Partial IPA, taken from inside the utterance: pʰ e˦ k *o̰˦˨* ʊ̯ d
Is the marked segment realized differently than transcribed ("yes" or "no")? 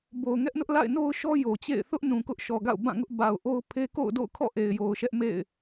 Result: no